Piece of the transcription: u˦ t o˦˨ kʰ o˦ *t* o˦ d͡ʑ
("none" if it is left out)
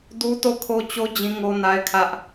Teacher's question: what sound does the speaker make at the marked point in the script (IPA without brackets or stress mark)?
t͡ɕ